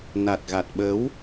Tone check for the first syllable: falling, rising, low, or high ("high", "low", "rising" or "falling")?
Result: low